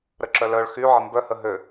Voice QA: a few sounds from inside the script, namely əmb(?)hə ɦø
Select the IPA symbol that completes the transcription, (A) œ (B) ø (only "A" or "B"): A